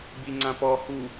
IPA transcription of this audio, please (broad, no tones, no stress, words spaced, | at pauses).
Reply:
biŋ͡ǀãpɔ hu